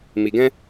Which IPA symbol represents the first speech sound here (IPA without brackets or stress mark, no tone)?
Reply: m